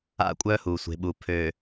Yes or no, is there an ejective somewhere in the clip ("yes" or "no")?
yes